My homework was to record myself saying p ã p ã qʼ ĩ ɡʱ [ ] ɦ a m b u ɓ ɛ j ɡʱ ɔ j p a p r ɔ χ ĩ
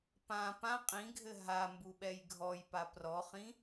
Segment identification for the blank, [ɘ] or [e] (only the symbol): ɘ